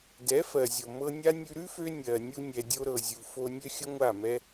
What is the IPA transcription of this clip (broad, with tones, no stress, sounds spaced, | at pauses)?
d ɛ˨˦ f ɜ˨ zʲ o˨ m ɤ˧ nʲ a˦ nʲ ʉ˧ ɾ ʉ˦ f ø˧ nʲ ɜ˨ nʲ u˧ nʲ ɛ˨ dʲ o˧ ɾ ɤ˨ zʲ u˨ f o˧ nʲ ø˦ xʲ ə˦ ŋʷ a˦˨ m ɛ˦